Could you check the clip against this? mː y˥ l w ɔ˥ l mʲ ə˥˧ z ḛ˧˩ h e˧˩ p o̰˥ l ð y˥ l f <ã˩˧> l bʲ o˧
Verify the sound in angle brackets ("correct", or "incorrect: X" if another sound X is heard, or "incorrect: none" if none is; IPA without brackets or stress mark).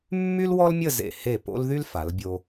incorrect: a˩˧